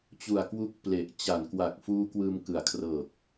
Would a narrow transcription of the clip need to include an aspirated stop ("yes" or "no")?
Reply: yes